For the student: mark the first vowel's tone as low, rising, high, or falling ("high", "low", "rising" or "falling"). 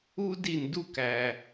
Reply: high